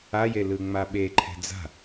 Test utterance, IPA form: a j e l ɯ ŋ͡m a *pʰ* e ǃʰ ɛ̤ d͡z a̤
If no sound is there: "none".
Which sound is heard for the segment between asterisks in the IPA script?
ɓ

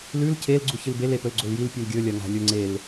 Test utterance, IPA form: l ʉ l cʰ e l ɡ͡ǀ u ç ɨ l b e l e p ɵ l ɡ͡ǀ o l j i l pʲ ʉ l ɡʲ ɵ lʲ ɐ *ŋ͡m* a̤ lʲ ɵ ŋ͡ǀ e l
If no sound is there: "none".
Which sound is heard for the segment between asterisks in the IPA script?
ŋ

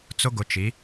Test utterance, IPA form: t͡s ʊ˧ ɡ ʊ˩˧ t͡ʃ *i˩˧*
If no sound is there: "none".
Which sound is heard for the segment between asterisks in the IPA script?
i˩˧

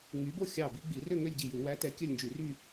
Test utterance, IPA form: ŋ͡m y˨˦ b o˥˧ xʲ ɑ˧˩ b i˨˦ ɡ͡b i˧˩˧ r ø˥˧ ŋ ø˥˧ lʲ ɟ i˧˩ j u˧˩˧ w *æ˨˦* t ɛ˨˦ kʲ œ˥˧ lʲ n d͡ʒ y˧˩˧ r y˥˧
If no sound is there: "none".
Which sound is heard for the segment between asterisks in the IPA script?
æ˨˦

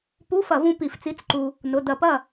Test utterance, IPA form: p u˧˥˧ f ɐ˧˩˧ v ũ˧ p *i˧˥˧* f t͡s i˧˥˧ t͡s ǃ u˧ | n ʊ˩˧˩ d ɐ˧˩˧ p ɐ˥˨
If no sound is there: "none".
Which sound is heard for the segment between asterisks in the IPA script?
i˧˩˧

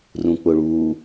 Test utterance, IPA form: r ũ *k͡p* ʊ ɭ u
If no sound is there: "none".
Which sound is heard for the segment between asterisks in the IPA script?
k͡p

